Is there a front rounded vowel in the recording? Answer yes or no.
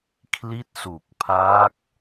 no